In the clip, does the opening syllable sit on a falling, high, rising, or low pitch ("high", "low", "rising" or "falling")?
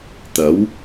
rising